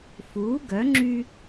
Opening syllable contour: rising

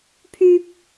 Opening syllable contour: high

